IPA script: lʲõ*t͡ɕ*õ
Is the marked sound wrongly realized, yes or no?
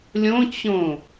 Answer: no